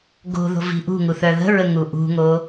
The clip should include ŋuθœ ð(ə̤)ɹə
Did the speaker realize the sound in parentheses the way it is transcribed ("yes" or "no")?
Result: yes